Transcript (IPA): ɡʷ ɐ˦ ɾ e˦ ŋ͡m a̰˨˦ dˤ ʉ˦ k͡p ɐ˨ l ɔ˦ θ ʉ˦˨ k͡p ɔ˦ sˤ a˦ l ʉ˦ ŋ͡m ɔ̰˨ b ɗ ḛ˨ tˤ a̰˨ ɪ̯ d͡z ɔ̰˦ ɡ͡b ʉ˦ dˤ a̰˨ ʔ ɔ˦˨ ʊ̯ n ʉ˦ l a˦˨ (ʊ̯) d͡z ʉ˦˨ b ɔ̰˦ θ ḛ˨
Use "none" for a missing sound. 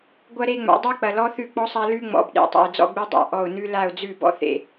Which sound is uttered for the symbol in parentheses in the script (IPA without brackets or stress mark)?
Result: ʊ̯